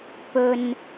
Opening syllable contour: low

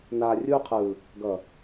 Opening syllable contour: low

